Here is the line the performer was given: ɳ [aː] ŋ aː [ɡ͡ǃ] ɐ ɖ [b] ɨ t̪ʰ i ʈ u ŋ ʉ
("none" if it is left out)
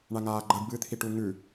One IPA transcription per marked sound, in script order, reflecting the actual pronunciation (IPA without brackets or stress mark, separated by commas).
a, ɡ͡ǃ, b